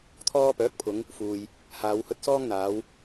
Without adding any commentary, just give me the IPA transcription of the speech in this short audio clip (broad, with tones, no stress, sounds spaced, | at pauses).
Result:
t̪ʰ ɔː˧ p œː˨˥ k̚ pʰ ʊ˨˧ ŋ | f uː˨ j | h aː˨˧ w h ɵ˧ t̚ s ɔː˥ ŋ n̪ aː˨˧ w